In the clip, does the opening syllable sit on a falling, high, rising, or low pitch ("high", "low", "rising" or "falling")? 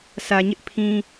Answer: low